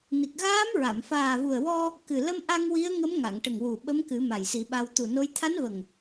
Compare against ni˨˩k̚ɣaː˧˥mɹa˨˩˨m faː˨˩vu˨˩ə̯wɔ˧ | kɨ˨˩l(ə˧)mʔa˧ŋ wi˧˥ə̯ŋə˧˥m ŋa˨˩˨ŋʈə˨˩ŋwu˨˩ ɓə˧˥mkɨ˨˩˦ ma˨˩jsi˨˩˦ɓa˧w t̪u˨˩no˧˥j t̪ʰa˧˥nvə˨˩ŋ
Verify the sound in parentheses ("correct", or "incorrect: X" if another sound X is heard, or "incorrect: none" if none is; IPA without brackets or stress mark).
correct